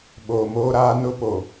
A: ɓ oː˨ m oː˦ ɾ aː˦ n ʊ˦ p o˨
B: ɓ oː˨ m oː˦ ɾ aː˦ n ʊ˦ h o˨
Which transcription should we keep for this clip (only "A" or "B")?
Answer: A